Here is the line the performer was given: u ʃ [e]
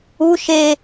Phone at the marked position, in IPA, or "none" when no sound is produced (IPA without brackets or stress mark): e